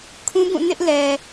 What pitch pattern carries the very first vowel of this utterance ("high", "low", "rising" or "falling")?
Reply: high